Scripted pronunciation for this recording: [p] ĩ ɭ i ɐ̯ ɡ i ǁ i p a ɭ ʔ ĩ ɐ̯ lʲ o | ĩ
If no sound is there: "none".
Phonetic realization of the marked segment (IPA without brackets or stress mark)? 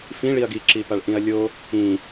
f